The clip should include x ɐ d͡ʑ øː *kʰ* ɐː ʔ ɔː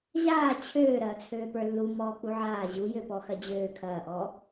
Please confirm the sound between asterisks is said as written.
yes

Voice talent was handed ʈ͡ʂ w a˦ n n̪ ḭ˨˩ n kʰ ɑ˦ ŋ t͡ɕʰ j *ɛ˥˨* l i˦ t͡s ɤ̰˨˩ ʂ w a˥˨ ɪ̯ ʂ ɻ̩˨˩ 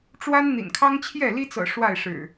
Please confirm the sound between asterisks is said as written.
yes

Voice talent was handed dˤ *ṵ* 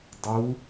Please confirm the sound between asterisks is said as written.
no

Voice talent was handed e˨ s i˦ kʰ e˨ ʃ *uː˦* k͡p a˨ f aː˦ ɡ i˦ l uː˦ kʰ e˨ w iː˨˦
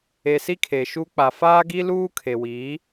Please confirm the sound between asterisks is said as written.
no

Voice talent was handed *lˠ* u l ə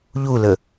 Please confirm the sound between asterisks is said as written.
no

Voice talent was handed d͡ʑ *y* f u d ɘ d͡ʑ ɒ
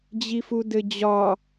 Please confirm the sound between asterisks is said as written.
no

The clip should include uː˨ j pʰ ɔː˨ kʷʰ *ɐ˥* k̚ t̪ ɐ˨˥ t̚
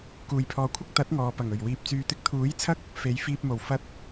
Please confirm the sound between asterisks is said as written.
yes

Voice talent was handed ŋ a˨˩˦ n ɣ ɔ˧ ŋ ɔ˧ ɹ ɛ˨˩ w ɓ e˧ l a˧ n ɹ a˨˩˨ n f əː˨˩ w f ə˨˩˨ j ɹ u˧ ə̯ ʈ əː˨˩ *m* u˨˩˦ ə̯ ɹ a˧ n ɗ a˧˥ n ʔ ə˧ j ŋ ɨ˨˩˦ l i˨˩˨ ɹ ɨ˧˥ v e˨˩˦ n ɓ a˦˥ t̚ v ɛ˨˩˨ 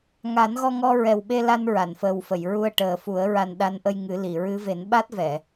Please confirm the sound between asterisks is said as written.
no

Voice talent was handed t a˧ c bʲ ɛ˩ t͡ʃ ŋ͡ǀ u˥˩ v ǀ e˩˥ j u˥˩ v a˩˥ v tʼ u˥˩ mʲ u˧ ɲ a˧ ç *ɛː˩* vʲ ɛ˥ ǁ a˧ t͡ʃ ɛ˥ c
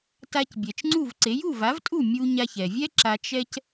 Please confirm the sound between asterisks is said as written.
no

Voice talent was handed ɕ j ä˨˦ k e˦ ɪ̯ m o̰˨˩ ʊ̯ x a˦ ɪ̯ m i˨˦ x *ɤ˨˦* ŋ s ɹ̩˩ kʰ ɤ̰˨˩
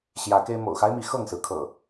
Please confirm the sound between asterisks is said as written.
no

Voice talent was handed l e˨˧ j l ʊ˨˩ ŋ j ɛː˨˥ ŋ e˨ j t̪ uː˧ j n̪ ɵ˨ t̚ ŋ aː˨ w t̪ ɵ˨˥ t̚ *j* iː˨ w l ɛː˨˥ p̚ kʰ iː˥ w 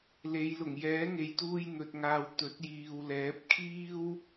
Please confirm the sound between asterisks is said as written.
yes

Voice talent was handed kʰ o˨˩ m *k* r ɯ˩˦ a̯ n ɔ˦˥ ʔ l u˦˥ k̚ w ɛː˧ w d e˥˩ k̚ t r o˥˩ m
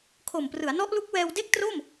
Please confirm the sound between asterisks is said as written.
no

